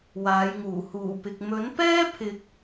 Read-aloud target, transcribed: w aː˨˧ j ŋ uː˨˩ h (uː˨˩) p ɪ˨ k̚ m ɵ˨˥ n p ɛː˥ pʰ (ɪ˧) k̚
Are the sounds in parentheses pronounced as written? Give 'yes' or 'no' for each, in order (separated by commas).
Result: yes, yes